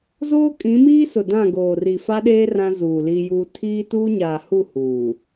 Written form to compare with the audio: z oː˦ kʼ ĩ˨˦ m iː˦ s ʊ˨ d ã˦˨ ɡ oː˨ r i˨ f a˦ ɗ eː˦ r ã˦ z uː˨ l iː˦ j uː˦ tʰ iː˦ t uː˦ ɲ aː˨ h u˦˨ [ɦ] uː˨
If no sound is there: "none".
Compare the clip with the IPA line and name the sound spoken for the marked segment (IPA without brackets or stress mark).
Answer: h